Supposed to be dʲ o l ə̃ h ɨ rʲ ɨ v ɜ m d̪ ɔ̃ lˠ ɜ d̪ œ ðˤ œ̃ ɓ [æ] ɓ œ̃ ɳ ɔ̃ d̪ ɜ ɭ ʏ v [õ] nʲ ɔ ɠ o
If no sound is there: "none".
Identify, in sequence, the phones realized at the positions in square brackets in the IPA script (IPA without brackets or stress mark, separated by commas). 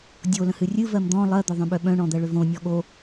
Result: œ, õ